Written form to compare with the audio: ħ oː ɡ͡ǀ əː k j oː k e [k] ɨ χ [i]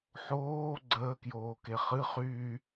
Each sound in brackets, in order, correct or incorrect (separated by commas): incorrect, incorrect